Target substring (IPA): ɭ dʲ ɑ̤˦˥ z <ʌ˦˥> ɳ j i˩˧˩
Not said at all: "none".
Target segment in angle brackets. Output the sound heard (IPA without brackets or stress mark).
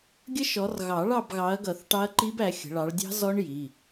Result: ɔ˦˥